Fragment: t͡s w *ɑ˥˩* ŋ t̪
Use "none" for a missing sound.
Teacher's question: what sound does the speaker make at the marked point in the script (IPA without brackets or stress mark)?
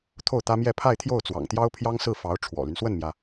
ɑ̰˨˩